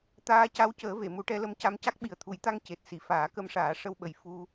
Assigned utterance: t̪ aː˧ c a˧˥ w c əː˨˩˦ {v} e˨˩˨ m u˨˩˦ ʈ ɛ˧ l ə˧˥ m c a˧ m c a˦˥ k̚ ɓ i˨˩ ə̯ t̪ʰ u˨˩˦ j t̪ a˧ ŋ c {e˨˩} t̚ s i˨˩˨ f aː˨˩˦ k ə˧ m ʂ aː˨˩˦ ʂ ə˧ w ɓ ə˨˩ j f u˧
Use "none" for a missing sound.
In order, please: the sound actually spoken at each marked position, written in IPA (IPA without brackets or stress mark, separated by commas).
v, e˨˩